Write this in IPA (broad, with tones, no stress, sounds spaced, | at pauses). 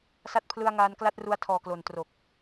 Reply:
s a˦˥ t̚ pʰ l ɯ˧ a̯ ŋ aː˧ n k l a˥˩ t̚ r u˧ a̯ tʰ ɔː˨˩ k l o˨˩ n t r o˨˩ k̚